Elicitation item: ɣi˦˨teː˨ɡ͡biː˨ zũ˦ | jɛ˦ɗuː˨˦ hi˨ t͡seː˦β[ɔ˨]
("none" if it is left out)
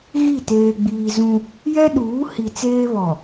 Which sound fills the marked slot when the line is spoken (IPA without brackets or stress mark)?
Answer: ɔ˨